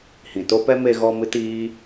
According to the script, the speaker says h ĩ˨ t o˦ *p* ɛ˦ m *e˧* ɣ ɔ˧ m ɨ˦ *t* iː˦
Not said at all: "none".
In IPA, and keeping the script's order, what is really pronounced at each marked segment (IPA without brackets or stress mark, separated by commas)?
p, e˧, t